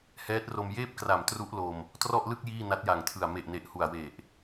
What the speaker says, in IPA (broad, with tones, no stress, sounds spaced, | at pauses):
h ɛː˦˥ t̚ r o˧ m j eː˥˩ p̚ k r a˨˩ m t r u˦˥ ʔ l o˧ m | t r ɔ˥˩ ʔ l ɯ˥˩ k̚ j iː˥˩ n a˦˥ t̚ j a˨˩ ŋ tʰ ɯ˨˩ a̯ m e˨˩ ʔ n e˨˩ ʔ h u˨˩ a̯ w e˨˩ ʔ